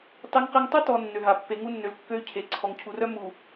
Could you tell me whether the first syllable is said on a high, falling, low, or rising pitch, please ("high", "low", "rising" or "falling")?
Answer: high